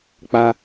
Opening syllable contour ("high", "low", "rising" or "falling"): high